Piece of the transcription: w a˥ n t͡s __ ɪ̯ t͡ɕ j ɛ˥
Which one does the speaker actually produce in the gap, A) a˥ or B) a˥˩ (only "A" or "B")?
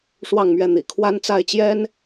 B